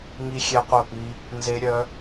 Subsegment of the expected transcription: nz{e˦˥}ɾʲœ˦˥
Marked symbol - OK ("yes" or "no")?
yes